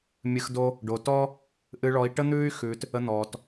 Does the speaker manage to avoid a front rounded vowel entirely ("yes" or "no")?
no